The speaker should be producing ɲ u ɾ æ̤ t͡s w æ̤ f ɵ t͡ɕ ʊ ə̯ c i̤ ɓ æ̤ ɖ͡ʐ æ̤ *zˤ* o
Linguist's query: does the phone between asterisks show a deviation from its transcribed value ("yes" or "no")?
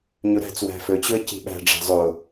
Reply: no